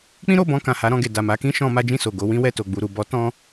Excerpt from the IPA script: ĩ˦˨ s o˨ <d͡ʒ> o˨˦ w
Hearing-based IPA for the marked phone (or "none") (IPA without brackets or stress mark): ɡ